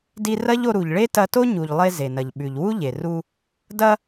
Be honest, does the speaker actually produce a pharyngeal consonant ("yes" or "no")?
no